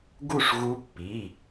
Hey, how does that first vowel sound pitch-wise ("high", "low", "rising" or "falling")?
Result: falling